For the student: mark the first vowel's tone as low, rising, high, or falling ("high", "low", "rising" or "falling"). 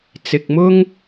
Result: low